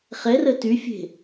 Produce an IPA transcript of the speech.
χ ɛ r ə t y fʲ e̤

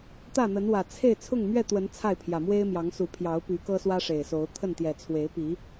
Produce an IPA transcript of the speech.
t̪ ä˥˨ n̪ ə˨˦ n w ä˨˩ t͡sʰ e˥˨ ɪ̯ t͡sʰ ʊ˥˨ ŋ m ɥ ɛ˥˨ t̪ w ə˨˦ n t͡sʰ a˥˨ ɪ̯ pʰ j ä˨˩ m w e˦ ɪ̯ m j ɑ˨˦ ŋ s u˨˦ pʰ j ɑ˨˦ ʊ̯ p y˨˦ k ɤ˦ s w ä˦ ʂ e˨˩ ɪ̯ s o˨˦ ʊ̯ t̪ʰ ə˥˨ n t̪ j ɛ˨˩ t͡sʰ w e˨˦ ɪ̯ p i˨˦

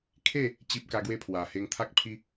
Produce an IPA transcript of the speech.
kʰ e˥˧ | t͡ɕ i˦ p̚ k a˦ ɡ w e˥˧ pʰ w a˨˩ h e˧ ŋ t̪ʰ a˦ k̚ pʰ i˦

